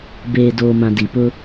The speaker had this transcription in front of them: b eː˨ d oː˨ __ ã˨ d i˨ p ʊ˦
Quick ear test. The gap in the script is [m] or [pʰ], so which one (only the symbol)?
m